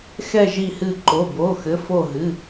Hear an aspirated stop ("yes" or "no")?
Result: no